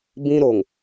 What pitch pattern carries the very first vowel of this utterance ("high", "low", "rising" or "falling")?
high